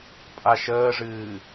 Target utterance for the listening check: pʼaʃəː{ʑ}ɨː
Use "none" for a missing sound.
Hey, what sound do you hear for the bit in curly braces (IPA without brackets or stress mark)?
ʐ